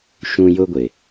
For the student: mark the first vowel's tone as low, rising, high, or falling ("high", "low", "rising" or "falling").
high